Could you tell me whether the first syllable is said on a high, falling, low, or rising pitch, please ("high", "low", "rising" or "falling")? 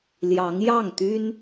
rising